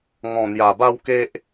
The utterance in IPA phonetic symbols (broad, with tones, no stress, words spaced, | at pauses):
ŋɔ̃˨˩n̪ja˨˩ba˧w ke˦ʔ